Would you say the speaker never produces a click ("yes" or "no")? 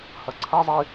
no